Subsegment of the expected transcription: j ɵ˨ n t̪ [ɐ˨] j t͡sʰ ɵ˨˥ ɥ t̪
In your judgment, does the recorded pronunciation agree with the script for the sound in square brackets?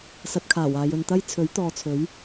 no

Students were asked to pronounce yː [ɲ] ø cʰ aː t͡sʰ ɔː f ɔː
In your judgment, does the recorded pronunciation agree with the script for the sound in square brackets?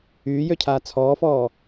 no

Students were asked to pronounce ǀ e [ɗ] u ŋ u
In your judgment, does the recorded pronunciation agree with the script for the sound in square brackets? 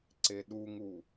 yes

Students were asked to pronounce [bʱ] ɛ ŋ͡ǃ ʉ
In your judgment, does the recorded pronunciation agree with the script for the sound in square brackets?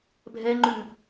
yes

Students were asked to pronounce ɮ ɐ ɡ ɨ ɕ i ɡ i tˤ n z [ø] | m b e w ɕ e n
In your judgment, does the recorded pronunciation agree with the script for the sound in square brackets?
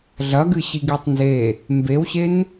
no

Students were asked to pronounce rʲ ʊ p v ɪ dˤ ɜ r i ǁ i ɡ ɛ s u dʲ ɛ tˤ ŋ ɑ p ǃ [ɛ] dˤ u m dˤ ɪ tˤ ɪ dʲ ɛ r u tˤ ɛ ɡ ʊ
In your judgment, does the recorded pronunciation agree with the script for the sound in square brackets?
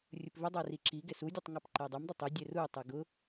yes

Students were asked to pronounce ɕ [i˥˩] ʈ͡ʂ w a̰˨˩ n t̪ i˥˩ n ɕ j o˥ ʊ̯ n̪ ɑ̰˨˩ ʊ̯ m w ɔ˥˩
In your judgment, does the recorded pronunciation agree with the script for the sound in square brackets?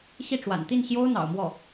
yes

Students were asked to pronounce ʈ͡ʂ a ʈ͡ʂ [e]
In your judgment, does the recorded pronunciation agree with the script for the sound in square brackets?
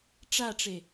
yes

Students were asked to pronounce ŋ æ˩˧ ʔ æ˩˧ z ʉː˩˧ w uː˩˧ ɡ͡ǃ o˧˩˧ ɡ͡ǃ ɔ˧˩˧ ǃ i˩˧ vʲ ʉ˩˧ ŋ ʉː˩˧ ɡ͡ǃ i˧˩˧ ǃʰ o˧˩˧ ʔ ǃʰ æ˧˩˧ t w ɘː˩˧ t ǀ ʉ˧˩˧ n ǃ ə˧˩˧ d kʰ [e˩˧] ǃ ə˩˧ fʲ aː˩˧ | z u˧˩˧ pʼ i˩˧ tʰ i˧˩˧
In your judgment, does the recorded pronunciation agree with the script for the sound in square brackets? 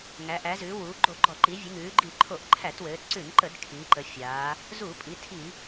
no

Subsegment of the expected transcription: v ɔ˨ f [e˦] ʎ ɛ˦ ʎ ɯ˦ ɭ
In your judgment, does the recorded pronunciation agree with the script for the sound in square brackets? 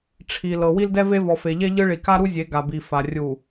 no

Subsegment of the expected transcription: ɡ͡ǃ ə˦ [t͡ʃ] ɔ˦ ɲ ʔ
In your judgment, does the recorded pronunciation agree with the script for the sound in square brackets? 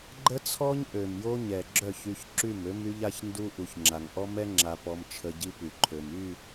no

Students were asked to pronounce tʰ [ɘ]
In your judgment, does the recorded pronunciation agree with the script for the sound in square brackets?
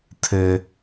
yes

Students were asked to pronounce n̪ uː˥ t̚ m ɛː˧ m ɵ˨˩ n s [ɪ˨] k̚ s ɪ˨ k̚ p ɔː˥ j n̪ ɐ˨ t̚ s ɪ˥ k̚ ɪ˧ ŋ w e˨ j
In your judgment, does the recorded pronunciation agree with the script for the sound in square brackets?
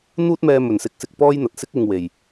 no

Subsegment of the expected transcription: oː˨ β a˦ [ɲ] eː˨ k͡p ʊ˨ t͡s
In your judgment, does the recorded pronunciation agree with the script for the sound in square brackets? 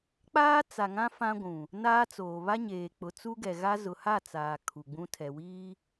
yes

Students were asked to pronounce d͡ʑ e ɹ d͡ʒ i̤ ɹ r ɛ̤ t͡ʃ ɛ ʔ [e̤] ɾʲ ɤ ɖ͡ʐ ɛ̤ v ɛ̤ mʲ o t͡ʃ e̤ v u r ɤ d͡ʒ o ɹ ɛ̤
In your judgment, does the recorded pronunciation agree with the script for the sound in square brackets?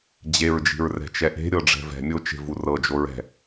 yes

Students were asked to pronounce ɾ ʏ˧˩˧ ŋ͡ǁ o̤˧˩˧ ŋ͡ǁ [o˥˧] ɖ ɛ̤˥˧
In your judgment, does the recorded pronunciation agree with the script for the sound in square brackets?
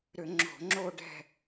yes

